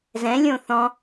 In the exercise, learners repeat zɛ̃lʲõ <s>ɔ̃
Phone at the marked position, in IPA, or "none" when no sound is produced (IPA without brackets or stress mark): θ